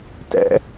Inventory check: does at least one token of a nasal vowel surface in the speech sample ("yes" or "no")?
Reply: no